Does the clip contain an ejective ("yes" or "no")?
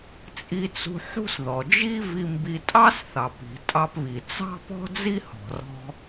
yes